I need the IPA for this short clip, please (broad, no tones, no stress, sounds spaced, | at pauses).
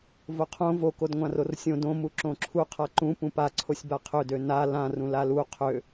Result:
v o qʰ õ v o k o d ŋʷ ã r o r sʲ õ d õ m u ǁ õ ǁʰ u qʰ a ǃ ũ p ũ p a ǀʰ o sʲ b a qʰ ø d ø n a l ã r ũ l a l u qʰ ø